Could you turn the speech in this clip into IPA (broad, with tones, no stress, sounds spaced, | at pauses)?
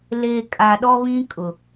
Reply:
l e˨ kʼ a˨ ɗ ɔ˦ β ĩ˦ kʼ ʊ˨